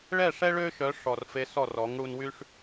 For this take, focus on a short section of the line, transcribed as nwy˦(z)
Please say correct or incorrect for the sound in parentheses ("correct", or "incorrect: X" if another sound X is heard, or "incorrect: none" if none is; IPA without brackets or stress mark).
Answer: incorrect: ʂ